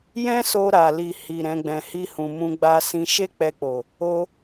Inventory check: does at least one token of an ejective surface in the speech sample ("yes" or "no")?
no